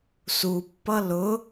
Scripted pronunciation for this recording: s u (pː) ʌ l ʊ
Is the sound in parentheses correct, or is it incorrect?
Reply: correct